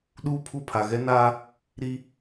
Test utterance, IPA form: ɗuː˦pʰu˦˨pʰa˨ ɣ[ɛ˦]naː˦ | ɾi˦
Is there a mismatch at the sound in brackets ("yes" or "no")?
no